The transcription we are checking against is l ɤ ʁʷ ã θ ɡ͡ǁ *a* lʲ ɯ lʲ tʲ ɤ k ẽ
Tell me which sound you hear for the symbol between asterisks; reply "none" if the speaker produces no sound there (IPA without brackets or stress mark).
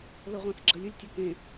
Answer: ə